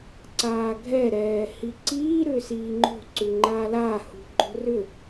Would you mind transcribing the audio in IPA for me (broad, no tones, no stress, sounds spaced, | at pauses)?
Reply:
ǀ aː ɡʱ ɛ ɾ ɛː h i ǀ iː ɾ ʏː s iː ŋ͡ǃ o̤ ǀ ʉ ŋ͡ǃ aː l aː h ṳ ɡ͡ǃ o̤ r ʏ